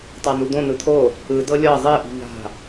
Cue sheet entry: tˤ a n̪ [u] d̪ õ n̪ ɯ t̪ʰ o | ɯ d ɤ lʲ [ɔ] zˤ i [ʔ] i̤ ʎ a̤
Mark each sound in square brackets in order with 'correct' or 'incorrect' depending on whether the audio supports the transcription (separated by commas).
correct, incorrect, correct